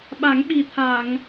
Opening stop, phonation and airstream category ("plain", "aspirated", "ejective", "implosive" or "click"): implosive